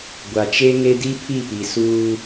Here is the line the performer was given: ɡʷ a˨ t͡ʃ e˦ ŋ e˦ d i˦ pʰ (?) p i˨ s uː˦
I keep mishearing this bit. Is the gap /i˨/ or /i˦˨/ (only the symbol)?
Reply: i˦˨